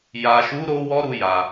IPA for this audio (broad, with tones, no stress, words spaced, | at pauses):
ja˨ʃu˨˦ ɾo˦wɔ˦ ɾu˧ja˨